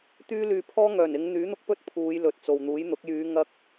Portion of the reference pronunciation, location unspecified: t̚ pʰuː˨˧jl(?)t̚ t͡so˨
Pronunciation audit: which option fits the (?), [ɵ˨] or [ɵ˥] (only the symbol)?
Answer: ɵ˨